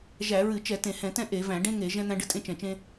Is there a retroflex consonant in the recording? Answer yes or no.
yes